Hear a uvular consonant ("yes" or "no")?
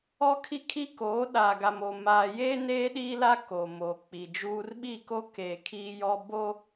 no